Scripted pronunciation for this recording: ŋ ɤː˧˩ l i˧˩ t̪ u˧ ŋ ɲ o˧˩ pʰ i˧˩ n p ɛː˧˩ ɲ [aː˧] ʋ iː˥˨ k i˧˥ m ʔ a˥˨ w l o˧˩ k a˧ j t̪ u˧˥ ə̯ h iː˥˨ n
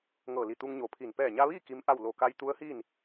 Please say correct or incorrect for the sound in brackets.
incorrect